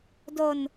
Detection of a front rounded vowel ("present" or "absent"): absent